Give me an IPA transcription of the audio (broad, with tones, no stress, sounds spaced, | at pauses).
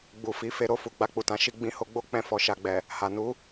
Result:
ɡ͡b u˨ f i˨˦ f e˧ ɾ o˧ f u˨ ɡ͡b a˧ k͡p u˨ t ã˨˦ ʃ i˧ ɡ͡b ĩ˧ h o˧ ɡ͡b o˦ k͡p ɛ̃˧ f ɔ˨ ʃ a˨ ɡ͡b ɛ˨ | h a˨ n u˨˦